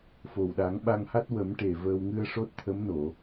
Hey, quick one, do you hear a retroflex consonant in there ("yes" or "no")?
yes